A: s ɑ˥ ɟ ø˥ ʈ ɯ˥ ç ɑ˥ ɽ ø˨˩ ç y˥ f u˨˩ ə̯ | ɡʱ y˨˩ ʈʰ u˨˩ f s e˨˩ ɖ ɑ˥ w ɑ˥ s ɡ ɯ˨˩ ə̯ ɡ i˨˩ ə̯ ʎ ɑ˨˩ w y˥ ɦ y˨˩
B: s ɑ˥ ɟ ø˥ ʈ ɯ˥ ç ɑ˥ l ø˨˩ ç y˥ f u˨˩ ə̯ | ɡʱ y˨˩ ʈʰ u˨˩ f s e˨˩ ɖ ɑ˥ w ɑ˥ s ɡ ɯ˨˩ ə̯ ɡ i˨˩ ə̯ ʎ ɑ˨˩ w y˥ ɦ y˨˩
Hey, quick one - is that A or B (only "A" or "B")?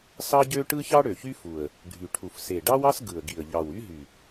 A